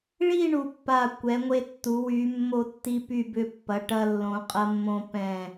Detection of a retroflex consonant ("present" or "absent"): present